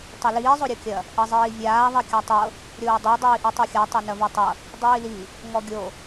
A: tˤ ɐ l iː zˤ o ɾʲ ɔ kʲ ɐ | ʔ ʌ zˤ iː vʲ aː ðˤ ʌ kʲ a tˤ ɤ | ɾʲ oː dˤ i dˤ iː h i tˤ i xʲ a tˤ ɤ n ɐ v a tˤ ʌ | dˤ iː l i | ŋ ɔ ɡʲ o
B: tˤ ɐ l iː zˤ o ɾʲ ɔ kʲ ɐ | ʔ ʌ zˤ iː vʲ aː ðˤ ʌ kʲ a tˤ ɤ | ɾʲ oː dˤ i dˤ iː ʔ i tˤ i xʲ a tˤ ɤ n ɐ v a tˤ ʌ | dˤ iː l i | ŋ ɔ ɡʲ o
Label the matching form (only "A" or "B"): B